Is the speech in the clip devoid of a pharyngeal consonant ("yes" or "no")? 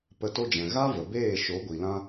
yes